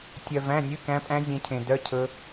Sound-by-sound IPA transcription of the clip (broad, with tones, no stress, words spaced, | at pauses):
tʲœ˧ væ̃˧˥˧nʲʉ˧˥˧kæ̃˦˥pʼæ̃˦˥ zʲẽ˦˥cʰẽ˧dœ˧˥˧ cʰɵ˦˥